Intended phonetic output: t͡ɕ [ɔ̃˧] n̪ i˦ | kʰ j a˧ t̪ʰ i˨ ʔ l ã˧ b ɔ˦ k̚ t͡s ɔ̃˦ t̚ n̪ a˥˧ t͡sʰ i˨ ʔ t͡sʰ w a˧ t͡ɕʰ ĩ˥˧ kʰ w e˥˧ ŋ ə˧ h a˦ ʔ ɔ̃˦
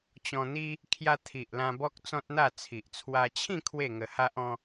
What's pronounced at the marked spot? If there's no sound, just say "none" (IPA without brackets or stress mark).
ɔ̃˧